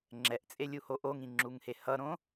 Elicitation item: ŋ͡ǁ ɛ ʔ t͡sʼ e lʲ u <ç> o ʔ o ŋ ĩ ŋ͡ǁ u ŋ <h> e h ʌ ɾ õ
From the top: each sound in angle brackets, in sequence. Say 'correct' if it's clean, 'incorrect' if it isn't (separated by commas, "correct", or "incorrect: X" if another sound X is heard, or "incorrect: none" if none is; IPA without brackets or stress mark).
incorrect: h, correct